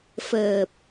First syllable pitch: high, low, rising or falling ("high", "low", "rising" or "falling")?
low